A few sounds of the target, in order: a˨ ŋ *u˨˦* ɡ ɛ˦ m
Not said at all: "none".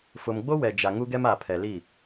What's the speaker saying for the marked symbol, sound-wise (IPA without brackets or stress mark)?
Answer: u˦